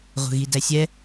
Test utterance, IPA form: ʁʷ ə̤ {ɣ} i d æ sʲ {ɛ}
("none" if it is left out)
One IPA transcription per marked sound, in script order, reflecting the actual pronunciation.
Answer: ɣ, ɛ

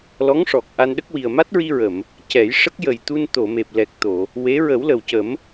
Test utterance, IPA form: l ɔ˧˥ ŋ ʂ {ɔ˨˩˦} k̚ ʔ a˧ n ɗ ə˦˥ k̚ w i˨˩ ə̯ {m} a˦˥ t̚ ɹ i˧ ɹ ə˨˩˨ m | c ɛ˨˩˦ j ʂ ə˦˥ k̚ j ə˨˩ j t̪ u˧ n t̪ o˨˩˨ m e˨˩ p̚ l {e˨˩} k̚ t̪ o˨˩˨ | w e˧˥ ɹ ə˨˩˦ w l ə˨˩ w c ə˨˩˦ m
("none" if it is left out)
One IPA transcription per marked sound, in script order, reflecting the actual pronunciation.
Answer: ɔ˨˩, m, ɛ˨˩

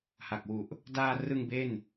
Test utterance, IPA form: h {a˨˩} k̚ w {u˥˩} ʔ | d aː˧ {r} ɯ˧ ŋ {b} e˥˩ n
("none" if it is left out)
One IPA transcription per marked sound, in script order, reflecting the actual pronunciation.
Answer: a˨˩, u˨˩, r, b

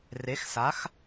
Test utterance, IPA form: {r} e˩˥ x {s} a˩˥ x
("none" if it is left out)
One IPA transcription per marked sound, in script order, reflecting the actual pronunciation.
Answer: r, s

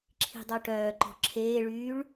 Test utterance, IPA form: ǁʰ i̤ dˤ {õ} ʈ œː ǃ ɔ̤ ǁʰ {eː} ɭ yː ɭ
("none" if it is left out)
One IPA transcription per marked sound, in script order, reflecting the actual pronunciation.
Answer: o, eː

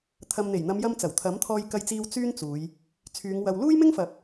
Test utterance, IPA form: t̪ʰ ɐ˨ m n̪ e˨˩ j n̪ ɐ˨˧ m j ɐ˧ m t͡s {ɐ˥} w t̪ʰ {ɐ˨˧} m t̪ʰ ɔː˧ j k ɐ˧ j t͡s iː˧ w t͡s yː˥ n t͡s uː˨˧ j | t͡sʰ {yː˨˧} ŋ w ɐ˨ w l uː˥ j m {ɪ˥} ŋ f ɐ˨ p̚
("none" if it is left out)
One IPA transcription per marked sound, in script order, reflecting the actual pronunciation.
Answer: ɐ˨˩, ɐ˨˥, yː˨˧, ɪ˥

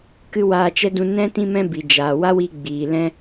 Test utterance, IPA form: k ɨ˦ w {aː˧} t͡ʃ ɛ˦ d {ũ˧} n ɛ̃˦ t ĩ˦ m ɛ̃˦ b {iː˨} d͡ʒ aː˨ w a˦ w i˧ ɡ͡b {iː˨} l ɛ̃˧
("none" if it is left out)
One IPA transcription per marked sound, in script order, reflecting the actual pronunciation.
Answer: aː˧, ũ˧, i˨, iː˨

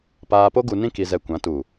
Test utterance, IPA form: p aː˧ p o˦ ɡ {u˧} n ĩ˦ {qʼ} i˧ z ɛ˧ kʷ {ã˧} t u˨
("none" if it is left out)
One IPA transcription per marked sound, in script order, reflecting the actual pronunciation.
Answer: u˧, k, ã˨˦

